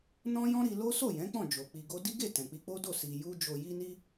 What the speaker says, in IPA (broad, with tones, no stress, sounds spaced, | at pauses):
n ɔ̃˦ j ɔ̃˦ ɾ i˧ l o˦ s o˦˨ j ɛ̃˨˦ k͡p ɔ̃˦˨ d͡ʒ o˨ k͡p i˧ ɡ o˦ d i˦ ɡ e˦˨ t ɛ̃˨ k͡p i˧ k͡p o˦ d o˦˨ s i˨ j u˧ d͡ʒ o˨ j i˧ n i˧